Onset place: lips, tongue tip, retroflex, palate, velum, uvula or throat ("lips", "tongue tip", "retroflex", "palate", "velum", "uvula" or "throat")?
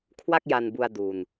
velum